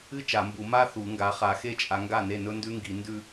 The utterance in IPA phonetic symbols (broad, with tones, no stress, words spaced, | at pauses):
ɨ˥ t͡ʃa˨˩˦ mbu˨˩˦ ma˥˧ θu˨˩˦ŋɡa˨˦ χa˨˩˦xe˥˩t͡ʃʼa˨˦ŋɡa˥˩ ne˥˩nɵ˥ndʉ˥ŋɡi˨˩˦ ndʉ˥˧